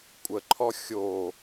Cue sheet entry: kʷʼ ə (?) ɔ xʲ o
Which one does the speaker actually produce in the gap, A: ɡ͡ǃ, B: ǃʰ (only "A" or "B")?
B